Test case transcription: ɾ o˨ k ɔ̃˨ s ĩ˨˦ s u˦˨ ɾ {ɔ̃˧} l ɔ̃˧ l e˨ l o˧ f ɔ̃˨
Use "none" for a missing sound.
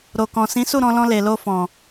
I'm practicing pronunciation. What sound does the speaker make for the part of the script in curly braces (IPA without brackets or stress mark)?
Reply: ɔ̃˧